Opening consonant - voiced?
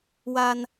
yes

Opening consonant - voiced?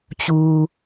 no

